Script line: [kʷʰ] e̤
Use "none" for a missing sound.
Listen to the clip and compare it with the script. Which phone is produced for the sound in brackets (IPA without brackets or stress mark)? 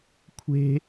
kʷʰ